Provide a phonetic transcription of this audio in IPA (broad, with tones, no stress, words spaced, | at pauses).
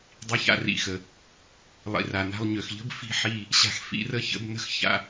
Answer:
dˤi˧ça̰˧rḭ˨xə˨ | lˠḭ˨ra˨ na̤˧lˠɲø˨xʎə̤˦b fi̤˦ħi˦˨ | ɕa̤˧xfḭ˧rə˦çə̰˨˦b nə̤˦x ça̰˦